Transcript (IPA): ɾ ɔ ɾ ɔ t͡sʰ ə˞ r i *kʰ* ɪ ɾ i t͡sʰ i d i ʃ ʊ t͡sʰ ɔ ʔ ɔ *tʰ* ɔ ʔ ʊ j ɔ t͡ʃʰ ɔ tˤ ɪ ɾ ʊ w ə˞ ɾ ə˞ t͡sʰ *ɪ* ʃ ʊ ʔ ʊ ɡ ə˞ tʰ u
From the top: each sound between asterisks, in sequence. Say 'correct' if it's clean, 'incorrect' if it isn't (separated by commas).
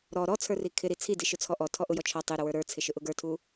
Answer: correct, correct, correct